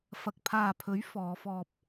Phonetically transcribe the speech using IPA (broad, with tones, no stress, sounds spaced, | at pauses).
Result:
f ɐ˨ k̚ pʰ aː˨ pʰ ɵ˨˥ ɥ f ɔː˨˧ f ɔː˧ p̚